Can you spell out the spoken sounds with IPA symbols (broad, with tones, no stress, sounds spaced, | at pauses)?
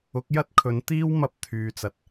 ʊ˨˥ k̚ j ɐ˥ t̚ kʰ ɵ˨˧ n t̪ iː˥ w m ɐ˧ p̚ t̪ʰ yː˨ t͡s ɐ˨ t̚